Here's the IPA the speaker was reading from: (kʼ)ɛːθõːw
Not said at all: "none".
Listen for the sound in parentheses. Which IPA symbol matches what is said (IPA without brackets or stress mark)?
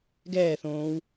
ɡ